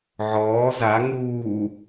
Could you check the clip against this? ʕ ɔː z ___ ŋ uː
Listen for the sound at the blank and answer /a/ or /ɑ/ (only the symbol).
a